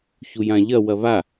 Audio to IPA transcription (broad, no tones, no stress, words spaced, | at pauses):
çujãʎɐ wɐβa